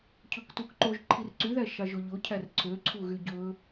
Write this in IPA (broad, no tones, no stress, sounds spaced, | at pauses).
cʰ ɵ k t u k ǃ o ʒ ǃʰ i r ǀ y ð æ ʃ ɑ ʒ o ʎ o cʰ æ r ǀʰ ø ǀʰ u ɣ y ɟ ɵ